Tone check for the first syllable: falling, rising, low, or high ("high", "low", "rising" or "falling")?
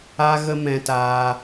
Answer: high